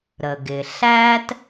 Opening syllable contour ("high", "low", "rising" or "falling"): low